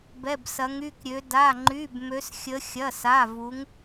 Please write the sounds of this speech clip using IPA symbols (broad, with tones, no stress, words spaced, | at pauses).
bɛ˧˥˧bsɐ˧˥ŋy˧˥˧kɾʲø˧˥ da˧˥˧ŋ͡ǃy˧˥˧b mø˧˥sxʲə˧˥ xʲɐ˧˥˧sa˧˥˧vu˧˥ŋ